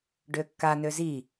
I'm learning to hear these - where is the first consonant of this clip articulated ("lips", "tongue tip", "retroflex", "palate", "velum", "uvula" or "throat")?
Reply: retroflex